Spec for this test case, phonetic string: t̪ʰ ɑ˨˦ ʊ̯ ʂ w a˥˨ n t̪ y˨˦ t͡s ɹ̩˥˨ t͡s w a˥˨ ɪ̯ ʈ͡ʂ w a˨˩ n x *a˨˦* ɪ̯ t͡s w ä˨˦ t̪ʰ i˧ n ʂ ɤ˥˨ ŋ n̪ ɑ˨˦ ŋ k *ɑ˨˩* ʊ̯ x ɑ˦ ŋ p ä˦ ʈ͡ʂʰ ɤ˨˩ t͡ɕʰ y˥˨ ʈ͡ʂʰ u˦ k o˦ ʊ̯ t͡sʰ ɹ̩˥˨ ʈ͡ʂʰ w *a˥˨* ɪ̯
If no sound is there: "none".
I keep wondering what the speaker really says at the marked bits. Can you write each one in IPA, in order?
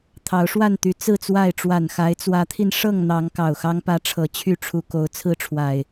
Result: a˨˦, ɑ˨˩, a˨˩

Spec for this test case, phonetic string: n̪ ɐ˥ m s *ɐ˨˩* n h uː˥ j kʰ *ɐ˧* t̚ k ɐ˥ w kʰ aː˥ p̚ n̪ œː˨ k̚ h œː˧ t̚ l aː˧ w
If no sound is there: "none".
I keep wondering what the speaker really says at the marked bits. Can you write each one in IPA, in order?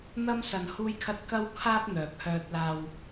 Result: ɐ˧, ɐ˥

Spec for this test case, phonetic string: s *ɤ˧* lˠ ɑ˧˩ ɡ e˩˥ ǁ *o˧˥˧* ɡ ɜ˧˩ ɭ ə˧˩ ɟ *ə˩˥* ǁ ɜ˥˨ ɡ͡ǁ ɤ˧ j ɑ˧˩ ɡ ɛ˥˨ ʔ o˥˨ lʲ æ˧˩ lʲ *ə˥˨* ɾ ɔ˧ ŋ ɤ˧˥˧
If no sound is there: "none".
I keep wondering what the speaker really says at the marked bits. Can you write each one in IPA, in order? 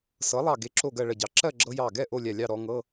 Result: ɤ˩˥, o˧˩, ɑ˩˥, ɑ˥˨

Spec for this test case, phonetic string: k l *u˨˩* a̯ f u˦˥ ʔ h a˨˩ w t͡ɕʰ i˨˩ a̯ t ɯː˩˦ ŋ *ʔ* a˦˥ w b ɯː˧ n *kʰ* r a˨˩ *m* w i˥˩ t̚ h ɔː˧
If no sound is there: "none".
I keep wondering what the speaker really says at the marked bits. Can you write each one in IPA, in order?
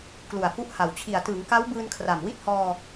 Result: u˨˩, k, kʰ, m

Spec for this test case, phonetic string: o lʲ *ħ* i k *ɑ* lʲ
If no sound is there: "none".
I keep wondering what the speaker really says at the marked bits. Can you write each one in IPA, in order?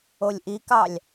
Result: ʔ, ɑ

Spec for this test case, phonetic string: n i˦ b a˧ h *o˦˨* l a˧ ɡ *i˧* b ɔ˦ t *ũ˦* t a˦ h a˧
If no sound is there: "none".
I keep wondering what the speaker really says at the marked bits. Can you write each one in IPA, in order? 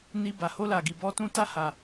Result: o˦, i˧, ũ˦

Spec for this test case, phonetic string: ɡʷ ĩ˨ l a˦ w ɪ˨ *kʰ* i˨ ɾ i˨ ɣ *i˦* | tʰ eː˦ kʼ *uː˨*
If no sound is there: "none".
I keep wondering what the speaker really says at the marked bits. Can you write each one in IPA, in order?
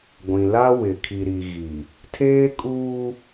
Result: kʰ, i˨, uː˦

